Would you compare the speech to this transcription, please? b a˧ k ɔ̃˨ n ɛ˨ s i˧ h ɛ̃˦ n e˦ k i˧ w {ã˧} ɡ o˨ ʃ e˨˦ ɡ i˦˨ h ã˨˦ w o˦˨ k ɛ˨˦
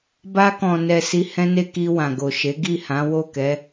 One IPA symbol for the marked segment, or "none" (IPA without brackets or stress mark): ã˨